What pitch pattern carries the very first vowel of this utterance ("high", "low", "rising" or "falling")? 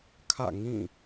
falling